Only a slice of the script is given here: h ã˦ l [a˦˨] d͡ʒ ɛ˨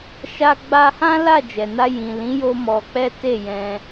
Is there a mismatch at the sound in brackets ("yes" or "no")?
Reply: no